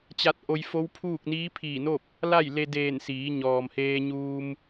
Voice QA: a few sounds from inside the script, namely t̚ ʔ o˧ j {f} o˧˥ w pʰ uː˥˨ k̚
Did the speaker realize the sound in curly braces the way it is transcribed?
yes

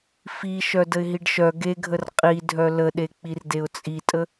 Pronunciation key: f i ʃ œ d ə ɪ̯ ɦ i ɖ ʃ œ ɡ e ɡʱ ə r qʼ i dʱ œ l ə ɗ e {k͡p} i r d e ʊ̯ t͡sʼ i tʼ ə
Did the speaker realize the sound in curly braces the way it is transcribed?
yes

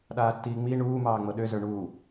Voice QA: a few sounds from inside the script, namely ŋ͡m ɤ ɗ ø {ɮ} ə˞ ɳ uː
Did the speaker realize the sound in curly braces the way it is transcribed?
no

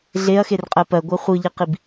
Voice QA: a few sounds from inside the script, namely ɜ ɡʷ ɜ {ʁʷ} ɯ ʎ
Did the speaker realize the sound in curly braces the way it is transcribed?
no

